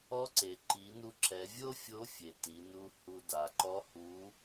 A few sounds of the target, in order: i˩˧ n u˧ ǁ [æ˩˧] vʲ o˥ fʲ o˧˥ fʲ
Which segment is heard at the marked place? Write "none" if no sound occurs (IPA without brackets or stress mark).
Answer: ɛ˩˧